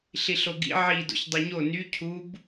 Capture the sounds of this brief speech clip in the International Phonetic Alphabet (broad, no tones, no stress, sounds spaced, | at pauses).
ɬ i ɬ o ɡ ḭ ʕ i d o̰ ç dˤ u ɲ o n y cʰ u b